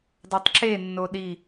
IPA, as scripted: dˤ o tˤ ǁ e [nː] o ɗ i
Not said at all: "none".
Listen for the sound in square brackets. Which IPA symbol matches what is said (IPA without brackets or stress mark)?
nː